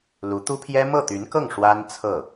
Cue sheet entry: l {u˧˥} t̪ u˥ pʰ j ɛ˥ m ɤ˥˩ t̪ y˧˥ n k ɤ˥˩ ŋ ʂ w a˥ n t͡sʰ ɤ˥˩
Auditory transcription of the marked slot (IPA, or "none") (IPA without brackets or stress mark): u˧˥